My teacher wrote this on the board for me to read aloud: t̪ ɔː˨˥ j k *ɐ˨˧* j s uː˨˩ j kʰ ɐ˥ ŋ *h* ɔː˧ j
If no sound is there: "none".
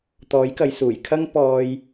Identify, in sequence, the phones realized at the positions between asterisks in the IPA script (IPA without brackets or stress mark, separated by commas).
ɐ˨˧, p